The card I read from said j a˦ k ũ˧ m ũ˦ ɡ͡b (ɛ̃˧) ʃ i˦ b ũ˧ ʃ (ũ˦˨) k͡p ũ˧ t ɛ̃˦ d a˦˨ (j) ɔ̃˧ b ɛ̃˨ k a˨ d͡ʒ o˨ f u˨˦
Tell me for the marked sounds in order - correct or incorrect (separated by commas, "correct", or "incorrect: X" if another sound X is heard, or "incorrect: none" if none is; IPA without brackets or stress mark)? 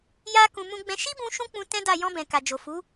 incorrect: ɛ̃˦, incorrect: ũ˦, correct